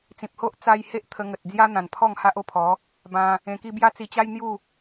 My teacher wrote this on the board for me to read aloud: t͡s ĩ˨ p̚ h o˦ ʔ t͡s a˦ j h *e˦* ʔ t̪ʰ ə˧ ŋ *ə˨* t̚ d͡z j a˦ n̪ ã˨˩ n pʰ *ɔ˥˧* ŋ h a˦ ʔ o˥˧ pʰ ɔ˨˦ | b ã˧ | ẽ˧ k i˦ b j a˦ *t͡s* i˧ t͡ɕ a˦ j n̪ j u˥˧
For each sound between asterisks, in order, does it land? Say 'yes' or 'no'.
yes, yes, yes, yes

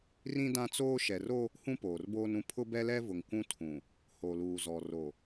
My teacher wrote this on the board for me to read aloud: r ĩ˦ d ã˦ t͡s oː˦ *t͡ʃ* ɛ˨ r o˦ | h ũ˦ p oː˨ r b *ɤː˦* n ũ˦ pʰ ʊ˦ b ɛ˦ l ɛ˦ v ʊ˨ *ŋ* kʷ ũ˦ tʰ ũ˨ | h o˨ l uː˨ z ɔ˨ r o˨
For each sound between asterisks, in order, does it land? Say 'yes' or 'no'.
no, no, yes

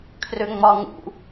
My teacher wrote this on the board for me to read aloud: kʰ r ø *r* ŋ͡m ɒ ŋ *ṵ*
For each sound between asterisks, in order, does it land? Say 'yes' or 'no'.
no, yes

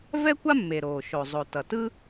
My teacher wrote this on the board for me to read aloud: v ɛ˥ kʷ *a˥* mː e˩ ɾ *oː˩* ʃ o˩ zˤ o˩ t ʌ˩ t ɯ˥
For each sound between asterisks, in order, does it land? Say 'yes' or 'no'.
yes, yes

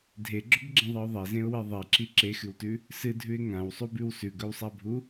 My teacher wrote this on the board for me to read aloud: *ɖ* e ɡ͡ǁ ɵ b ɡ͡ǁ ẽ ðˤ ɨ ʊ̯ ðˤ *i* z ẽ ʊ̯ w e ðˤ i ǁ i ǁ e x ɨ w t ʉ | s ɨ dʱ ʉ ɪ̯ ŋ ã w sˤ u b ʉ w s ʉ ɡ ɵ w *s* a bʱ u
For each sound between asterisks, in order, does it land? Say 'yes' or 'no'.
no, no, no

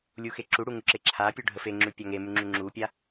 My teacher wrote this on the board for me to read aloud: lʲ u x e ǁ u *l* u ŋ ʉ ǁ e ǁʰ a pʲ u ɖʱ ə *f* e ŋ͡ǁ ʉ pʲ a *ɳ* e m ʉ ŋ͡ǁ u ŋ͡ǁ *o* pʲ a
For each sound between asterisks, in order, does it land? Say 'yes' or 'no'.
no, yes, no, no

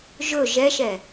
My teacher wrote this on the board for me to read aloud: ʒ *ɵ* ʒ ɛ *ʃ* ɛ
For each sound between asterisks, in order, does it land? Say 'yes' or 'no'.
yes, yes

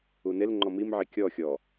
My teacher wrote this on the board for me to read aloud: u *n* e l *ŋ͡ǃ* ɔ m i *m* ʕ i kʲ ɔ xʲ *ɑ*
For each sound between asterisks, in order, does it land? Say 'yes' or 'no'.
yes, yes, yes, no

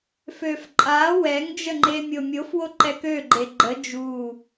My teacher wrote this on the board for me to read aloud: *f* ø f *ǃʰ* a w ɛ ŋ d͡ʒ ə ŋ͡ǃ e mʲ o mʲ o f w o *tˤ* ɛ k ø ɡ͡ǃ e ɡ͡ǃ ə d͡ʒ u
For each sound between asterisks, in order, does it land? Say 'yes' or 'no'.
yes, no, no

